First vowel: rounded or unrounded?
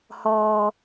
rounded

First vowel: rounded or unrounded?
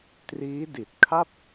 unrounded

